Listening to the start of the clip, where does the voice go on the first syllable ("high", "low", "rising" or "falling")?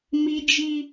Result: high